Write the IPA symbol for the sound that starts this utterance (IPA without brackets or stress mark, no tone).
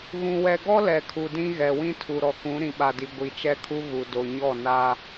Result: ɣ